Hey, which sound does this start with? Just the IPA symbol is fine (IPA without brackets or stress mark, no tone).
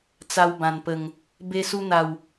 t͡s